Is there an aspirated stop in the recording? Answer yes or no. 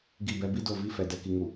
no